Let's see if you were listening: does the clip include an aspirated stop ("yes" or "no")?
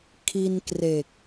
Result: yes